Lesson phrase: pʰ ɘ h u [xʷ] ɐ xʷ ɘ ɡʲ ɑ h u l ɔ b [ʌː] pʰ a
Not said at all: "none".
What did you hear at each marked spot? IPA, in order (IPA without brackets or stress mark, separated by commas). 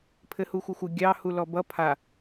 xʷ, ʌ